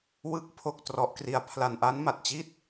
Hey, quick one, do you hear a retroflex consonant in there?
no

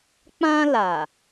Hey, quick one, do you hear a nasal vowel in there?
yes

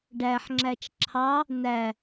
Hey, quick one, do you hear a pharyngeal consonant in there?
yes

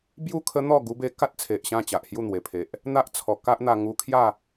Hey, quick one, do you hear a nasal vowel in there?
yes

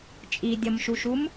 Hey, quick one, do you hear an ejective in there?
yes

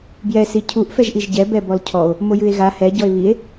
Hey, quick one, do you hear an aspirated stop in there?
yes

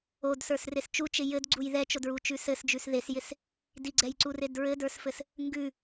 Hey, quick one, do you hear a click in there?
yes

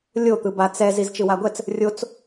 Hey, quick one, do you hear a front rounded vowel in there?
no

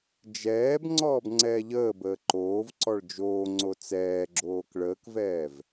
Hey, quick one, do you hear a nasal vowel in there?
no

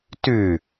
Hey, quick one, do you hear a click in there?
no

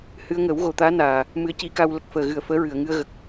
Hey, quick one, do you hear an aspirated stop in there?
no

